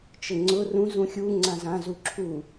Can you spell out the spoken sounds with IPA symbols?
t͡ʃ ɘ ŋ͡ǀ ʊ r ũ z ũ xʲ u ŋ͡ǀ ã z ã z u ǁʰ u

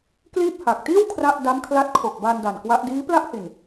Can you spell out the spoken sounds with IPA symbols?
k l iː˥˩ p̚ h a˨˩ k̚ t iː˥˩ w kʰ r a˥˩ ʔ d a˦˥ m kʰ l a˦˥ t̚ kʰ o˨˩ k̚ b a˧ n d a˨˩ n k w a˦˥ ʔ d iː˦˥ p l a˥˩ ʔ h i˨˩ n

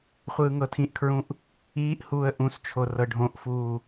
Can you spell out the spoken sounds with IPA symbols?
χʷ ɯː ŋ ɤ tʰ ĩ ʔ kʰ ɹ ũ ʔ | iː ʔ h uː ə̯ ʔ ũ s t͡ʃʰ o r ɤ ɖʱ õ ʔ f uː

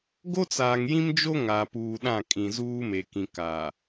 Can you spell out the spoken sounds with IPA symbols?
ɡ o˦ t͡s aː˨ ŋ j ĩ˦ m d͡ʒ o˦ ŋ a˨ p uː˨ ɗ ã˦˨ kʼ ĩ˨ z uː˦ m e˨ k ĩ˨ k a˨

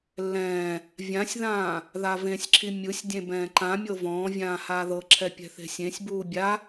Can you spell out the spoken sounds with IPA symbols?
lː ɛ̃ː | vʲ ã sʲ ð ãː | ð a v ẽ sʲ ǁʰ i mʲ ɯ sʲ dʲ ẽ b ɛ̃ː ǃ ã mʲ ɤ v ɔ̃ː vʲ ãː h aː ð ɤ ǁʰ ɛ pʲ ɛ̤ θ e̤ sʲ ẽ sʲ b uː bʲ a

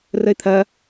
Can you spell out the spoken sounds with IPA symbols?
r ə ɪ̯ t̪ʰ ɐ

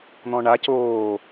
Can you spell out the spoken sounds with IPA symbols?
n̪ ɔ̃ ɳ a c oː

